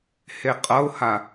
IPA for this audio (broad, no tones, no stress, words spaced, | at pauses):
heqʼʌʊ̯ha